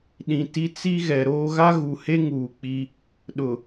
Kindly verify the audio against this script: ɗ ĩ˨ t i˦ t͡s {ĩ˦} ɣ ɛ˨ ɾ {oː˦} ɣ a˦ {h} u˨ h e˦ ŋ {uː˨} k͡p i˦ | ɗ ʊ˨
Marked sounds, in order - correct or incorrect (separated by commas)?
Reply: incorrect, correct, incorrect, correct